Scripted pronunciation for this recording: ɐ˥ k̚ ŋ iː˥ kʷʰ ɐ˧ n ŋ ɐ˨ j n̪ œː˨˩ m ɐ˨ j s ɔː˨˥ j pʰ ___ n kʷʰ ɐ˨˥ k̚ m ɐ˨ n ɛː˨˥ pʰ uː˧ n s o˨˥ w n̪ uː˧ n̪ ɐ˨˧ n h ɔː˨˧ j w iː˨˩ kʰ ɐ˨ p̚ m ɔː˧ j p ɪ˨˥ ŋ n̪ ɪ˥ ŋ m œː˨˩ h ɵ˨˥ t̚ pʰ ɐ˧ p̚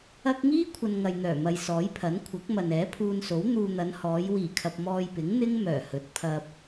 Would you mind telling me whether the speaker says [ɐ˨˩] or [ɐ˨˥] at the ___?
ɐ˨˥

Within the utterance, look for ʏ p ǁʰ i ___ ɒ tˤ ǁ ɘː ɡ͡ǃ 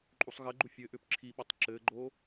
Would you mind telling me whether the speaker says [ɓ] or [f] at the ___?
ɓ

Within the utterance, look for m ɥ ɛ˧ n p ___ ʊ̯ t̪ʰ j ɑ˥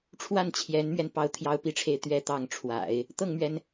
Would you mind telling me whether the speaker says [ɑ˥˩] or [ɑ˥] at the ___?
ɑ˥˩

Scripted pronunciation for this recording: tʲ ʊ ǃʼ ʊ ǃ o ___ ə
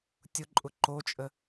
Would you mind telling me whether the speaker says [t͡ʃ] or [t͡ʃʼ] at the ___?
t͡ʃʼ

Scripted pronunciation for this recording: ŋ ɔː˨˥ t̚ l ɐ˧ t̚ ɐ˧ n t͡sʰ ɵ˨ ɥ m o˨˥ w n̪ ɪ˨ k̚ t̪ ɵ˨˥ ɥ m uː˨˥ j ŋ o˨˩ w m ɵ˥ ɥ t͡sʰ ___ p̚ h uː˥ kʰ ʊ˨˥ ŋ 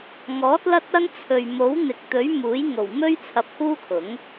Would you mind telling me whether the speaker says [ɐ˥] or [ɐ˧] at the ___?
ɐ˧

